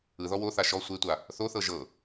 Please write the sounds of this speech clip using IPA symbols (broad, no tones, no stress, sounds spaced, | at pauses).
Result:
ɯ ð ɔ w o θ a ʃ ɔ sʷ e tʷ a | θ o θ ɤ ʒ ɤ